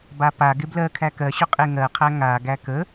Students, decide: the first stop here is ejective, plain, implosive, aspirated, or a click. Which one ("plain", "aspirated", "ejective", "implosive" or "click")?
plain